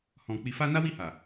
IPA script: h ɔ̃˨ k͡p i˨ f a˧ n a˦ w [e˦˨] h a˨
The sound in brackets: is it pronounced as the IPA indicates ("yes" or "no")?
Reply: no